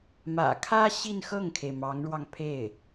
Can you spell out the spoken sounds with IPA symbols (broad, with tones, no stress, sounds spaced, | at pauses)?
m ä̰˨˩ kʰ ä˥ ɕ i˥˧ n x ɤ˥˩ ŋ kʰ e˩ ɪ̯ m ɑ˧˥ ŋ ɻ w ɑ˧ ŋ pʰ e˥˩ ɪ̯